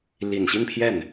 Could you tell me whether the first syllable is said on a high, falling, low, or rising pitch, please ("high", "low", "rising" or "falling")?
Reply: low